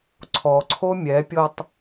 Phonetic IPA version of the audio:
ǀʰ ɔ ǀʰ o mʲ ɛ pʲ ɤ tˤ

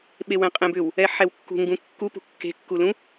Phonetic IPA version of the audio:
ɓ e w ɛ̃ qʼ ẽ b ʏ w | ɛ ħ ɛ w kː ṳ ŋ ɡ ũ kː u p ṳ kː e̤ kː u l ũ

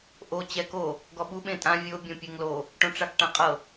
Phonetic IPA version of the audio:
ʔ o t͡ɕ ɛ k o | ɡ ɔ ɓ u ɓ ẽ tʼ ã vʲ o bʲ õ pʲ e ŋ l o | ʈ õ ʈ͡ʂ a k ʈ ã qʼ ɤ

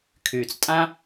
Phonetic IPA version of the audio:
kʰ yː˨ t͡s tʼ ã˦

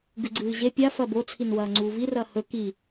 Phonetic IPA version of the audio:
ɡ ʉ ɡ͡ǀ ɨː ʑ e pʲ a f ɐ b o t͡sʰ i n w ɐː ŋ͡ǀ uː v i r ɐː h ɵ k i

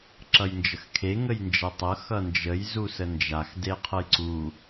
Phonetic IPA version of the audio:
ǁ ʌ j n d͡ʒ ə x kʰ e ŋ ə j n d͡ʒ ʌ tˤ ʌ x ʌ n d͡ʒ ə j z u s ə n d͡ʒ a x d e qʰ ɤ j ǀ u

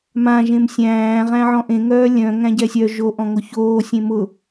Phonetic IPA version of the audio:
m ã ʒ ẽ m sʲ æ̃ː ʁ æ̃ ʕ ɔ̃ ʔ ẽ ŋ œː lʲ œ̃ ŋ æ̃ ɟ ɛ sʲ œ ʒ o ʔ ɔ̃ ŋ o ç oː sʲ ẽ m ʊ

